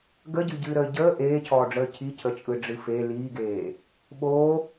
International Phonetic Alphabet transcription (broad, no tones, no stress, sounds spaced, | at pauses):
ɡ ə ɟ ɨ ɟ ɨː ɾ əː ɟ əː ʔ eː cʰ ɔː ɖ͡ʐ əː cʰ i cʰ ə t͡ʃʼ ɯ ɖ͡ʐ ɨ f e l iː ɡ eː | ɓ oː